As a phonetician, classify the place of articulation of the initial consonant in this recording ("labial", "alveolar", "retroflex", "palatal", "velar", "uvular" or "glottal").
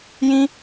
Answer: palatal